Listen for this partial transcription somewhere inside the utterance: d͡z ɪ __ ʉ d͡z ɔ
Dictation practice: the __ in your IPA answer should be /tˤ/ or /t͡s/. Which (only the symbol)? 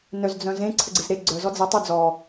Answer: tˤ